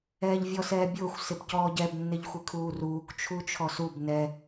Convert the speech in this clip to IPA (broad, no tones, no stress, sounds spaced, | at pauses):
ɛː ʎ vʲ ɔ s ɛː bʲ ʊː xʷ s ɪ b c ɔː ɟ ɛ b nː ɪ ʎ xʷ ɪ kʰ uː r uː k t͡ʃʰ u t͡ʃʰ ɔ s u b n ɛ